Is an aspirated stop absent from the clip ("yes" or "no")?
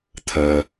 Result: no